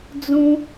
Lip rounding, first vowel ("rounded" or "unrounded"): rounded